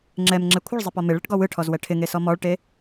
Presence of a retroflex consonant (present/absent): present